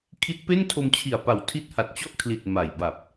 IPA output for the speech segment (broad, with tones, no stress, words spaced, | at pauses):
kʰi˦˥t̚pe˥˩ntʰo˧m t͡ɕʰi˨˩a̯pa˨˩w tʰi˦˥t̚ha˨˩t̚t͡ɕɔ˥˩ʔkʰli˨˩t̚ ma˨˩jba˨˩p̚